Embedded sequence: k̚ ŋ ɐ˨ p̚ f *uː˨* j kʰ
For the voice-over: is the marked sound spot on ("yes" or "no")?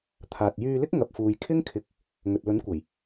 yes